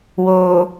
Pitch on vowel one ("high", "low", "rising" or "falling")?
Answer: low